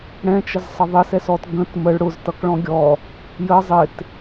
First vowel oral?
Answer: no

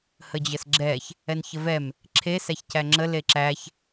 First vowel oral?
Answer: yes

